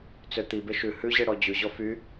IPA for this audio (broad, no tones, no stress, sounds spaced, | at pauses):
t͡s ø t̪ i b e ʃ ʉ h ʉ ʑ e ɽ ɔ d͡ʑ ʉ ʑ ɔ f y